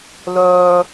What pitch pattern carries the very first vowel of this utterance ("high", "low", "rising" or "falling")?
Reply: high